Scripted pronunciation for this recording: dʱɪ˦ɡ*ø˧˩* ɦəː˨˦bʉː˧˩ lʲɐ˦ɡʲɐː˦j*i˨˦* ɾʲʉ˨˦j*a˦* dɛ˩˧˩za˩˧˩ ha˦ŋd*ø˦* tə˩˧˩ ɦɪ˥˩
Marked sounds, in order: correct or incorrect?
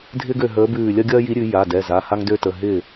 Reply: correct, correct, incorrect: a˩˧˩, correct

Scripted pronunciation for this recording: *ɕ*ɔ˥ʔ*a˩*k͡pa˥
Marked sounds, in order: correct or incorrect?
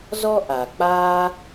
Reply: incorrect: z, correct

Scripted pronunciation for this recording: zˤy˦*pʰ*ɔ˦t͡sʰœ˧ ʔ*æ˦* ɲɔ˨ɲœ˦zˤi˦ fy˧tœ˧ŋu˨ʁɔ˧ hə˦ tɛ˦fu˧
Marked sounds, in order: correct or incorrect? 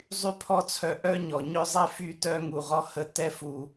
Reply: correct, incorrect: œ˦

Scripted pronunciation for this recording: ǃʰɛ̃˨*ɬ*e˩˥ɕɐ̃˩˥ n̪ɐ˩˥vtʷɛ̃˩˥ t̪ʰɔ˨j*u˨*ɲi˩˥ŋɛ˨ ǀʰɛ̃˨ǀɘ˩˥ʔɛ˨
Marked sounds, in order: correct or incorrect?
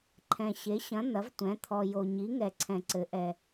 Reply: incorrect: ɕ, incorrect: o˨

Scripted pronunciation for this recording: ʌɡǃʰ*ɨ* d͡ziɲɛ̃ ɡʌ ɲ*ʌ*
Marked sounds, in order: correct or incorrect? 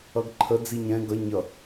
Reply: incorrect: ə, correct

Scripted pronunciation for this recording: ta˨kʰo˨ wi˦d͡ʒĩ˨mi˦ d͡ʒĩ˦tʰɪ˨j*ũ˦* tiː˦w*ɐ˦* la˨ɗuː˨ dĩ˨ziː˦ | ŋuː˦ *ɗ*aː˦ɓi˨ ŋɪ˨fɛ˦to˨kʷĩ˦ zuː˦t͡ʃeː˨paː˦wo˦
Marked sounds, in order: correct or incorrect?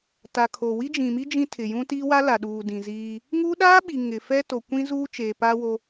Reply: correct, incorrect: a˦, correct

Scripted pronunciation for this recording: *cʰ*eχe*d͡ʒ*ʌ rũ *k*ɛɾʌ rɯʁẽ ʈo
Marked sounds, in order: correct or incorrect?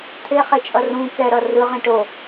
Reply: incorrect: t̪ʰ, incorrect: t͡ʃʼ, correct

